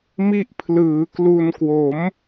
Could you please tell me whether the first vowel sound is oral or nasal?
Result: oral